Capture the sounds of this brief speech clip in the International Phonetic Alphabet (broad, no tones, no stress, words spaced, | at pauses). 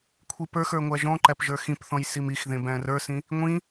kʷʰipə˞xə˞ ŋʷæʒɔ̃ǃæp ʒə˞xĩpθɔ̃j simixðẽ bæ̃rə˞sĩ | ŋʷĩ